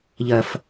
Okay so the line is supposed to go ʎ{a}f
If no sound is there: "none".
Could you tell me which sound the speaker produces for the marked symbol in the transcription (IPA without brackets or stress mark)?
ɐ